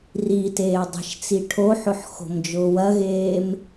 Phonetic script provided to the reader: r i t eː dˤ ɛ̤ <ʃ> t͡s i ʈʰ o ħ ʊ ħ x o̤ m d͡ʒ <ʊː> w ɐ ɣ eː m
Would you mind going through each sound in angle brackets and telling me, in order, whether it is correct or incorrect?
correct, correct

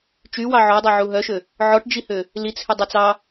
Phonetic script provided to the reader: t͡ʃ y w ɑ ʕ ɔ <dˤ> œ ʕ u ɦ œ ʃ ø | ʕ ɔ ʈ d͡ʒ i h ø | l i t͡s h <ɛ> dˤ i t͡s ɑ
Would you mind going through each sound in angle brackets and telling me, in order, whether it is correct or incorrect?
correct, incorrect

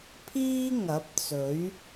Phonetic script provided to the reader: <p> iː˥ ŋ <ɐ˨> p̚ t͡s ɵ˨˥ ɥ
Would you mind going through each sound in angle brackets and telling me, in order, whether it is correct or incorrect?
incorrect, incorrect

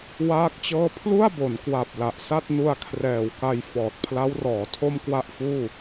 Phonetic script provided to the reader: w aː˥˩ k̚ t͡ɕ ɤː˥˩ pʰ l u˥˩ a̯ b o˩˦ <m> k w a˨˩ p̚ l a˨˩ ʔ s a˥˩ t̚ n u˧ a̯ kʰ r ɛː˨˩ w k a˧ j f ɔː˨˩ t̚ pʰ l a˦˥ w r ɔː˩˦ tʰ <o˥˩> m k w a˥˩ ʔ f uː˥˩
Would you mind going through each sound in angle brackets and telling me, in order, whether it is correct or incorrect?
incorrect, correct

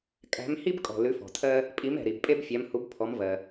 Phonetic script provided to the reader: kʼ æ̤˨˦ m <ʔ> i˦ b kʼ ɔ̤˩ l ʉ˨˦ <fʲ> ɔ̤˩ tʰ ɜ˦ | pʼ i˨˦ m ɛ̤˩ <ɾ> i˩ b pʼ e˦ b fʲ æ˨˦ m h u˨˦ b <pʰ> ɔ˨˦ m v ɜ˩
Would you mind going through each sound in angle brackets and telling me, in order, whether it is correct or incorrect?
incorrect, incorrect, correct, correct

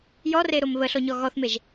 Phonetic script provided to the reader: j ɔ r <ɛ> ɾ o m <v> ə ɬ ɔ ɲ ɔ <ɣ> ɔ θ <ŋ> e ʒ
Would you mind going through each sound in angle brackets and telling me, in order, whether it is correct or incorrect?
incorrect, incorrect, correct, incorrect

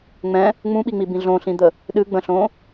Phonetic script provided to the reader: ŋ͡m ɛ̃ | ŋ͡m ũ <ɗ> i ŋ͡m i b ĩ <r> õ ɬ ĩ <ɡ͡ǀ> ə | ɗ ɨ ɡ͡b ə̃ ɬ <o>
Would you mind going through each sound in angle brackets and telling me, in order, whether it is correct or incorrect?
incorrect, incorrect, incorrect, incorrect

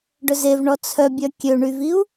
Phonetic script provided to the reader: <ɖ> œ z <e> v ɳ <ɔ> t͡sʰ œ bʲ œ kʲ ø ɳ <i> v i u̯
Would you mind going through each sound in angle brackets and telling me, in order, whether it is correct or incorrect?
correct, correct, correct, incorrect

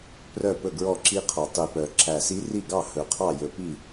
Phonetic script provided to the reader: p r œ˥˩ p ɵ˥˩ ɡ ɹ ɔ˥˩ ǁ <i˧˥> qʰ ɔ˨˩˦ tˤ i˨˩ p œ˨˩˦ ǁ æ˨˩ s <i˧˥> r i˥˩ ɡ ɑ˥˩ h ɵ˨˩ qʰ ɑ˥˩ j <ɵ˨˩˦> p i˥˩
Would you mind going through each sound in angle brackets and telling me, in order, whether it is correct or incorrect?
correct, correct, correct

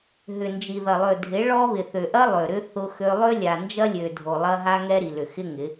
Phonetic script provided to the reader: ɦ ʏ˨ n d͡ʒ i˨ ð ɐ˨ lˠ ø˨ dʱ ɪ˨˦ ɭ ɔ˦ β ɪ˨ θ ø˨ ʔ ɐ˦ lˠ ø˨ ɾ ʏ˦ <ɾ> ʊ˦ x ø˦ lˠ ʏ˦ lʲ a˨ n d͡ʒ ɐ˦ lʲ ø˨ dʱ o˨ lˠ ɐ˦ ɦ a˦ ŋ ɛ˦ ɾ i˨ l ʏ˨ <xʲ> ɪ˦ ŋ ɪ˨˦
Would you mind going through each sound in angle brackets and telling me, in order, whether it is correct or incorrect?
incorrect, incorrect

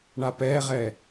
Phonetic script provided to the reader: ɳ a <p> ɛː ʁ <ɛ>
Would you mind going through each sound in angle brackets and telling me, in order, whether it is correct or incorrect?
correct, correct

